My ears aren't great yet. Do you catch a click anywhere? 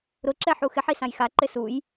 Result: yes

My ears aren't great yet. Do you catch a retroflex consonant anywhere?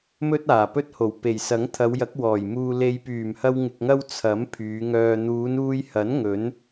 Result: no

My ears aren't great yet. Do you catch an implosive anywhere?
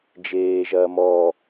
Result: no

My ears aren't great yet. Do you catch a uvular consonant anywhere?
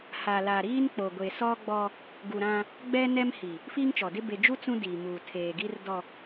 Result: no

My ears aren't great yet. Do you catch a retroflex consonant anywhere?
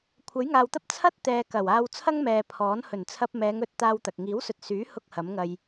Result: no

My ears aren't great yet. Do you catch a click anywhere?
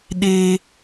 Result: no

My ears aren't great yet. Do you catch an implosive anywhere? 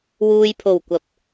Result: no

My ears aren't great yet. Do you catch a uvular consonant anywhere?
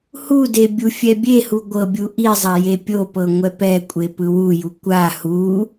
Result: no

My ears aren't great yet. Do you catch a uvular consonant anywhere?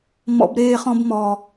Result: yes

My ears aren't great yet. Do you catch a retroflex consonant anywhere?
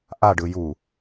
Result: yes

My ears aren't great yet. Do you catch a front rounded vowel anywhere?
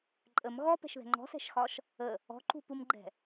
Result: no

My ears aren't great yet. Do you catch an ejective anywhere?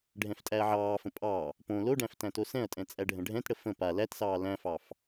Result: yes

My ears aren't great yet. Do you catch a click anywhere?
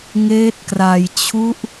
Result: no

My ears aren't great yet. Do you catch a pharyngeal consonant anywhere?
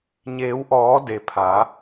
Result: no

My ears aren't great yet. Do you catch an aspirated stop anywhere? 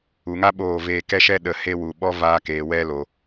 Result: no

